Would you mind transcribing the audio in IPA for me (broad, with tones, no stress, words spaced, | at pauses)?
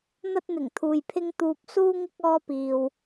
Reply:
n̪ɐ˧t̚n̪ɪ˨˩ŋ t̪ʰuː˨jpʰɪ˧ŋ t̪uː˨p̚ suː˧ŋɪ˧k̚ ɔː˧piː˨w